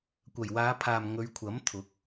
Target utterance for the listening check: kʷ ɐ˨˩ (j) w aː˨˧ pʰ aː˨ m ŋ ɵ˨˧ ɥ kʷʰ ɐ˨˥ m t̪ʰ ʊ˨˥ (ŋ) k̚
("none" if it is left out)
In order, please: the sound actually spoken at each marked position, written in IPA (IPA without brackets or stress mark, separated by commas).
j, none